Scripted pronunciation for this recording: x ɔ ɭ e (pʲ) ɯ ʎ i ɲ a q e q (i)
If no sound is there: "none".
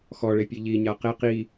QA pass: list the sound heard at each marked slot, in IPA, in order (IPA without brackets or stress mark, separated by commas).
pʲ, i